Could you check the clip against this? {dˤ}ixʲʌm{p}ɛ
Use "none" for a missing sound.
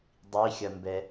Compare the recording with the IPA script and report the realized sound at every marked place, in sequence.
dˤ, b

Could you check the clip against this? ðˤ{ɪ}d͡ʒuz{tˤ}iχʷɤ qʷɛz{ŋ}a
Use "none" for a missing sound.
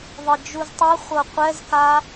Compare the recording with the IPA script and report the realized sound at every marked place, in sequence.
ɪ, tˤ, k

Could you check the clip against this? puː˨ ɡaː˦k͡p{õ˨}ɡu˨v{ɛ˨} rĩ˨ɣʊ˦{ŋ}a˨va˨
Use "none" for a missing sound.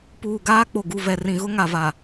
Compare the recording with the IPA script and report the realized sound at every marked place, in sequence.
o˨, ɛ˨, ŋ

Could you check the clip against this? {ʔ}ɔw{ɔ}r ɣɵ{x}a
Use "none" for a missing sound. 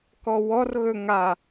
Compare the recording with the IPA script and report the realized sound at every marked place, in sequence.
k, ɔ, ŋ

